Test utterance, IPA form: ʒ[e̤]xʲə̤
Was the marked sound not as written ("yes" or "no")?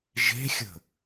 no